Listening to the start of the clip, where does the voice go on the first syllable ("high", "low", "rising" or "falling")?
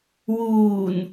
low